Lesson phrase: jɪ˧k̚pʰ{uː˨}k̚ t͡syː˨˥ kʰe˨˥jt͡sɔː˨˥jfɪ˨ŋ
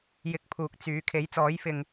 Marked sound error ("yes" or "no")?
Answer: no